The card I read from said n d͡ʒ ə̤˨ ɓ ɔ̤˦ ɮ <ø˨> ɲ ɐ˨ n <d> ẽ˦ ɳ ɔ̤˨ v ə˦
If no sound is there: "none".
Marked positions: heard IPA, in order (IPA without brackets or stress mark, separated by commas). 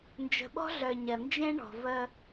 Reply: œ˨, d͡ʒ